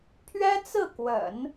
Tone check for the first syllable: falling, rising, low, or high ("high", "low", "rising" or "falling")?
high